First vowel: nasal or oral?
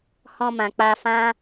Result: nasal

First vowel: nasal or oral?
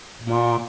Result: nasal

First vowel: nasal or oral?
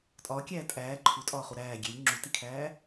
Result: oral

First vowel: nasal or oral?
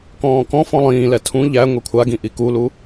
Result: nasal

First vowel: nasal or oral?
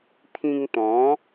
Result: nasal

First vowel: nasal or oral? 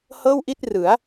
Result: oral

